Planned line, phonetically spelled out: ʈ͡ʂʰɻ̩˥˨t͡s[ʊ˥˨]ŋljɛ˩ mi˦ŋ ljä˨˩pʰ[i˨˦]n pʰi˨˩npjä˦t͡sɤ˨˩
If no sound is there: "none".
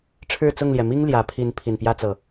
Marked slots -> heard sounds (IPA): ʊ˥˨, i˨˦

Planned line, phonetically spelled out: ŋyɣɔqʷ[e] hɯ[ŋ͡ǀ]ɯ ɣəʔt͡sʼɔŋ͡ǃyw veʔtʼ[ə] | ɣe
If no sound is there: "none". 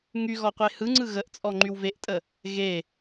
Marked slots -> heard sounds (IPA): e, ŋ͡ǀ, ə

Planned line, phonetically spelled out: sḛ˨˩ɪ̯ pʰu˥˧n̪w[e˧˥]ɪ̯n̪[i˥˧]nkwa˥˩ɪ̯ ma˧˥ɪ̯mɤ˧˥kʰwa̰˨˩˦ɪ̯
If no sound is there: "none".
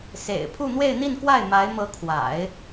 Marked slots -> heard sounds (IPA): e˥˧, i˥˧

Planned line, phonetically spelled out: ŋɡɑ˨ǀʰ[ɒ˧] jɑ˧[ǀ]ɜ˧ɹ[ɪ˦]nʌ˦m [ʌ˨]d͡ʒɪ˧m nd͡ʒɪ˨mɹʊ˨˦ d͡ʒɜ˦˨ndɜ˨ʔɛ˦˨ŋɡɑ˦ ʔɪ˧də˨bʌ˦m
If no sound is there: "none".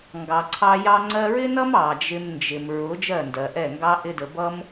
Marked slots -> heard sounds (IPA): ɑ˧, ŋ͡ǀ, ɪ˦, ɑ˨

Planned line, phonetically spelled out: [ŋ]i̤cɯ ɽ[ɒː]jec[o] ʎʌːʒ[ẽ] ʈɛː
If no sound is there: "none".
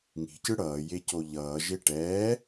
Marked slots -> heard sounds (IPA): ŋ, ʌː, o, e

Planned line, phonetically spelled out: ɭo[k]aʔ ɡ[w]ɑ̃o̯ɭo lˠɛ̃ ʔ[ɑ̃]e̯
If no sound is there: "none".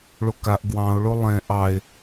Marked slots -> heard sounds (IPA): k, w, ɑ

